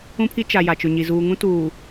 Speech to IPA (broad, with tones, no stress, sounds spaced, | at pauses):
ũ˦ pʰ i˦ t͡ʃ a˨ j a˨ t͡ʃ ʊ˨ ɲ i˨ z uː˨ ŋ ũ˦ t uː˨